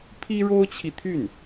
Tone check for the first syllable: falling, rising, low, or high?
high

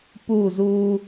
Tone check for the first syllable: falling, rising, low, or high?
falling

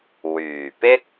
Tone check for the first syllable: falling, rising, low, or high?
low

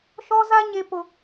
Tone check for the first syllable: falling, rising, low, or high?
high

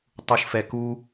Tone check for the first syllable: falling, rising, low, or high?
high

